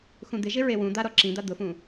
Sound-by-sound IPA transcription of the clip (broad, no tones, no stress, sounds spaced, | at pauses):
x ũ d̪ ɪ ʒ ɪ ɹ e w ũ d̪ a ɾ ɔ ǁ ĩ d̪ a d̪ ʊ f ũ